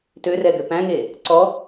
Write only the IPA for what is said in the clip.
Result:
tørɛ ɡøpæ̃ŋe | ǀɔ

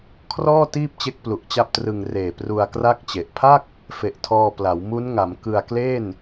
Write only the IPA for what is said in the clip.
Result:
kʰrɔː˥˩ tiː˥˩p̚t͡ɕe˦˥k̚ plu˨˩ʔt͡ɕa˥˩p̚trɯ˧ŋ reː˨˩pru˧a̯kra˥˩k̚t͡ɕe˨˩ʔ pʰa˥˩k̚ | fe˨˩ʔtʰɔː˧pla˩˦w mu˦˥nŋa˩˦m kɯ˧a̯kleː˥˩n

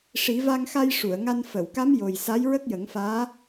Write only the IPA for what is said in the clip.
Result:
ʂi˨˩˦va˧ŋxa˧j ʂu˨˩˨ə̯ŋa˧n fə˨˩˨wka˧˥m jo˨˩j sa˧˥jɹə˦˥k̚jə˨˩˦ŋfaː˧˥

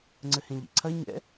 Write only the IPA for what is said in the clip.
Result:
ŋ͡ǀɘhẽʎḭǀʰɐ ɲɛ̰

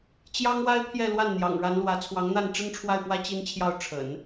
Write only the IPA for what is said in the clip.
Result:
t͡ɕjɑ˥ŋwa˥ɪ̯pʰjɛ˥˧ lwa˥˩nn̪jɑ̰˨˩ŋɻa˧˥nlwä˧˥ t͡sʰwɑ˧˥ŋn̪a˥˩n ʈ͡ʂə˥nʈ͡ʂʰwa˥˩ɪ̯pwä˥ t͡ɕi˥nt͡ɕʰjɑ˥˩ʊ̯ ʈ͡ʂʰə̰˨˩˦n

